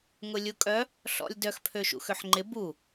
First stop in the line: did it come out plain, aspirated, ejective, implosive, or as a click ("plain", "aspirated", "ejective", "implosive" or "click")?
ejective